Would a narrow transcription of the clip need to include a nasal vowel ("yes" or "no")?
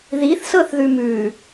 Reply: no